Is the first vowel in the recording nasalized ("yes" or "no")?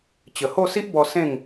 no